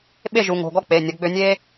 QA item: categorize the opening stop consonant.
implosive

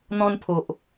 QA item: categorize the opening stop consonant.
aspirated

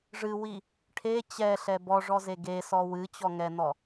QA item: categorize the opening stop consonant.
aspirated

